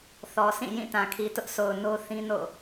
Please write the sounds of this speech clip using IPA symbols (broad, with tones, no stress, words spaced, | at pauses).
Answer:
θɔ˨sʰĩ˦˨jĩ˦˨ tã˨kʰi˨tʊ˦ʔsʰo˨ʊ̯ no˦θĩ˦ no̰˦˨